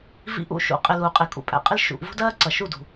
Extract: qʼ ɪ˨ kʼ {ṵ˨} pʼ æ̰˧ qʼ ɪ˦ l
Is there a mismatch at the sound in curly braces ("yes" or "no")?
no